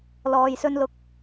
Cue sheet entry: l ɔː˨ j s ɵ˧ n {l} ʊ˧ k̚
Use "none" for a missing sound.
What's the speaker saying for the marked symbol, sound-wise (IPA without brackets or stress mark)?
l